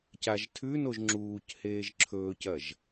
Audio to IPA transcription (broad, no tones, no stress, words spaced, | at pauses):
caʒtʰʉnoʒ ŋ͡ǁuːc heːʒǁʰɵːcɐʒ